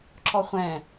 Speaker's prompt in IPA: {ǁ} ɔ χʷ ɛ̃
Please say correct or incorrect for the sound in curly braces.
correct